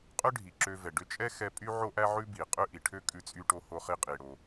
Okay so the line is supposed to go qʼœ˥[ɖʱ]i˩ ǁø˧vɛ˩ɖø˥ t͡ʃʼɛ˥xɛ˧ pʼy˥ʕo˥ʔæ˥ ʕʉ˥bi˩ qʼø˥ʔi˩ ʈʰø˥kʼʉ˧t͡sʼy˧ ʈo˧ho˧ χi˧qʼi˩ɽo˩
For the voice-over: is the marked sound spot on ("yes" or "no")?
yes